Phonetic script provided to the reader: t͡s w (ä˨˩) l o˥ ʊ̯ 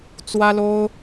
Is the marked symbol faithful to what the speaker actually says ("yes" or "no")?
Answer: no